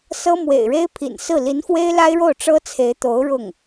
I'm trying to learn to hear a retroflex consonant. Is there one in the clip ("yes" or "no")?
yes